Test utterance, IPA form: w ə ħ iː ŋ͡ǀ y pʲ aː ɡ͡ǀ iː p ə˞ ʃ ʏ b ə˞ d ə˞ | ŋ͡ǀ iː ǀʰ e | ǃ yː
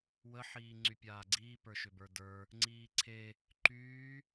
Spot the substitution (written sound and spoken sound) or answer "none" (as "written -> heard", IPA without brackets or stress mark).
none